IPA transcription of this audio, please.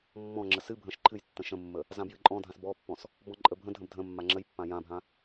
mː ɔ̃ ŋ͡ǁ ə s ɨ bʱ ə̃ ʃ ǃʰ ɨ j tː ə̃ ʃ ə̃ mː ə | z ã b j ɨ ǃʼ ɔ̃ dʱ ã s b ɔ pː ɔ̃ s | b ɔ̃ ǃʼ ə bʱ ə̃ dʱ ə̃ b dʱ ə̃ mː a ŋ͡ǁ ə j pː ã j ã bʱ ã

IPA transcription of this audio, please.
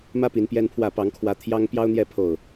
m ä˦ p i˨˦ n p j ɛ˦ n pʰ w ä˥˨ p ɑ˨˦ ŋ kʰ w ä˨˦ t̪ʰ j ɑ˦ ŋ p j ɑ˦ ʊ̯ n̪ j ɛ˥˨ pʰ o˨˩ ʊ̯

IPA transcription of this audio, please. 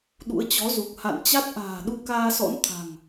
ɗ ṵ˧˥ ə̯ t͡ɕ ɔ˨˦ z u˨˩ k̚ h a̰˧˨ n t͡ɕ a˦˥ t̚ ʔ a̤ː˨˩ ɗ u˧ k aː˧ s ɔ̰˧˥ n t̪ʰ a̤˨˩ ŋ

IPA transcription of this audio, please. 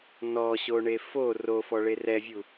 n ɔ ɕ o ɳ e f o r o f ɔ ɭ e r ɛ vʲ u

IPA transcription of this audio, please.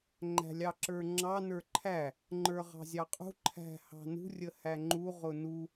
ŋ͡ǃ æ̤ lʲ ɑ ǁ ə˞ ŋ͡ǁ ɑ n ə˞ ǃʰ æ | ŋ͡ǃ ə˞ ʁ ɑ̤ zʲ ɑ qʼ ṳ ǃʰ æ̤ h ɑ̤ n ṳ rʲ ə h æ ŋ͡ǃ u ʁ ʊ n u

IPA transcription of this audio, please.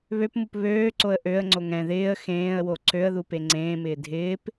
β ø p m u p β øː ǀ o ə̯ ʔ ø ə̯ ŋ͡ǀ o ŋ ɛ̃ ð ɪː ə̯ x ẽː ə̯ w o ǀ ø ə̯ ð u p e ŋ͡ǀ ẽː m ɪː dʱ ɪː p

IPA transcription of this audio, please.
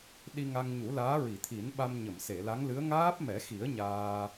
ɗ i˧ ŋ a˧ ŋ ɲ u˨˩˦ l aː˧˥ ɹ i˨˩˨ t̪ʰ i˨˩˦ n ɓ a˧ m ɲ ə˨˩˨ m s e˨˩˨ l a˧˥ ŋ l ɨ˧˥ ə̯ ŋ aː˦˥ p̚ m ɛ˨˩˦ x i˨˩˦ ə̯ ɲ aː˧

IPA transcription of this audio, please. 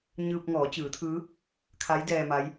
ɲ ɯː˧ p̚ ŋ ɔː˩˧ t͡ɕ ɯː˩˧ t̪ʰ ɯː˧˥ | kʰ a˧˥ j d ɛː˧ m a˧˥ j

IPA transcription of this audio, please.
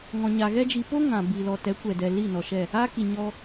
ŋ ɔ̃˨ ɲ a˨ ɣ ɛ˦ d͡ʒ i˨ p o˦ ŋ ã˨ b iː˨ l ɔ˨ t ɛ˨˦ kʷ ɛ˨ d ɛ˨ l i˦˨ n ɔ˨ ʃ ɛ˦˨ | a˦ k i˨ ɲ ɔ˧

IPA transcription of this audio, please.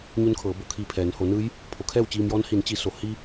ɲ u˧˥ n kʰ ɤː˩˧ b o˩˧ kʰ iː˧ pʰ ɛː˩˧ n h oː˩˧ n ɯː˧˥ j | pʰ o˩˧ kʰ ɛː˥˨ w t͡ɕ iː˧ m j ɔː˧˥ n h i˩˧ n t͡ɕ i˩˧ s o˩ h i˧

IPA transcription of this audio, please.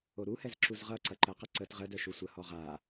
o ɾ u h ɛ z ǁ u z ʁ ʌ ǀ ɐ ǃ ə q ɐ ǀ ə t ʁ ə d œ ʃ u sʷ ə h ɔ ʁ a

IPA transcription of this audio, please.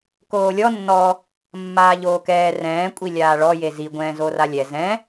k oː lʲ ɔ nː ɔ | mː aː ʎ oː k ɛː r ɛ̃ː kʷʼ i lʲ aː ɭ ɔ j e z i ɡʷ ɛ̃ː z o r a lʲ ɛ z ɛ̃

